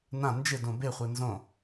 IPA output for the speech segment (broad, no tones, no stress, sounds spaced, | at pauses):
n ã n d͡ʒ ɪ d õ b e χʷ e n z õ